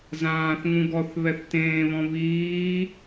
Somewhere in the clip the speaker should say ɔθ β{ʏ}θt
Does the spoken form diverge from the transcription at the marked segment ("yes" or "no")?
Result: yes